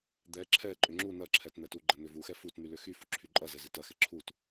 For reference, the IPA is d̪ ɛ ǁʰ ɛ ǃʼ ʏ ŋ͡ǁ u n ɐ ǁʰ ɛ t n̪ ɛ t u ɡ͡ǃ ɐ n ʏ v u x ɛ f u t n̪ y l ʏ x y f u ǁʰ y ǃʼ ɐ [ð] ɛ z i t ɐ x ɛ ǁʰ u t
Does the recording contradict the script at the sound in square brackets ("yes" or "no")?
yes